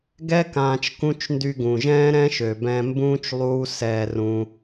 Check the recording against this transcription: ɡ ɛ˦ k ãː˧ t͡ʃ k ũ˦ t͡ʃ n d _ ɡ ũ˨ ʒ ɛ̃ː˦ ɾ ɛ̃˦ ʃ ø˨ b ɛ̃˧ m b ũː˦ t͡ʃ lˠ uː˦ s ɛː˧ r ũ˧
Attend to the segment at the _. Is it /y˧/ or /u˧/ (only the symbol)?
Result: y˧